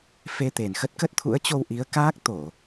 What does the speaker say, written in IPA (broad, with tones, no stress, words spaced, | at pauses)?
fe˧t̪e˨˩n xə˦˥t̚kə˦˥t̚ t̪ʰṵ˧˥ə̯t͡ɕo˧w ʔi˨˦ə̯ kaː˦˥k̚ t̪o˧˩˨